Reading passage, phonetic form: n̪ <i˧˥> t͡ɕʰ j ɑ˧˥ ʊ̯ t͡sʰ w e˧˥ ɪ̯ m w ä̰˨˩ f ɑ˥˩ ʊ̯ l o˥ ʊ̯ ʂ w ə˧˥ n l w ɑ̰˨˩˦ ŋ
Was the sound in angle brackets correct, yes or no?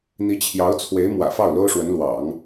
yes